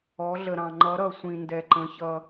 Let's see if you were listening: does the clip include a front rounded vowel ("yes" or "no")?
no